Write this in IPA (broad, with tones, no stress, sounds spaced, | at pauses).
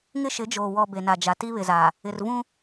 ŋ ɪ˦ ʃ ɪ˨˦ d͡ʒ oː˨ w ɔ˨ b e˨ n a˨ d͡ʒ a˨ t i˦ β ɪ˨ z a˨ | ɪ˨ r v ũ˦